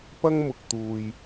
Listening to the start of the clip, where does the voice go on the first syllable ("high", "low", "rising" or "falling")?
high